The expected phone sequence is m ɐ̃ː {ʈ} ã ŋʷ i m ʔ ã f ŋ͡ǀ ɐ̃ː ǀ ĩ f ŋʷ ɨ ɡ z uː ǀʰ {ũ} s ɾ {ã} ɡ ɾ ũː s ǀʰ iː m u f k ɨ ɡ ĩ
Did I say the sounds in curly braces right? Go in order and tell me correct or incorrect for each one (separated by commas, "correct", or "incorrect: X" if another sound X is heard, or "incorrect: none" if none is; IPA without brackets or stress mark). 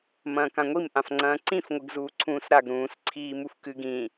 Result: incorrect: k, incorrect: ũː, incorrect: a